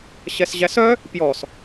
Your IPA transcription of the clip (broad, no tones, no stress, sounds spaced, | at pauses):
ɕ ɛ s ʑ æ s œ | p j ɔ s